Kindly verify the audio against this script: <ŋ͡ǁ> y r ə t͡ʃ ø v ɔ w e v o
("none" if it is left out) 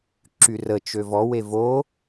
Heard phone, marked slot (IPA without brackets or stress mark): ǁ